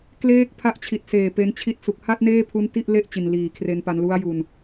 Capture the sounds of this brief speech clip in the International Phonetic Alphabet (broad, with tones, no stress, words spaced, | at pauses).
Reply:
kleː˦˥k̚pʰa˦˥ʔt͡ɕʰi˨˩t̚seː˨˩ pe˦˥n t͡ɕʰi˦˥t̚ su˨˩k̚ha˥˩t̚neː˥˩pʰu˦˥n ti˥˩ʔle˥˩ʔ t͡ɕi˨˩nliː˨˩kʰre˧npa˧n lu˦˥a̯ju˧n